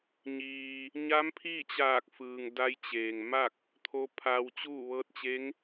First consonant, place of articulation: palatal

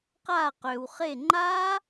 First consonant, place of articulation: uvular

